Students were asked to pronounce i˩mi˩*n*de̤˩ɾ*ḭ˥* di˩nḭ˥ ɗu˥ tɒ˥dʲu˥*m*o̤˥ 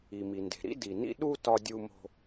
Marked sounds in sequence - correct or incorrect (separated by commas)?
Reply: correct, correct, correct